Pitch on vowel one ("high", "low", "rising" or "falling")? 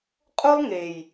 high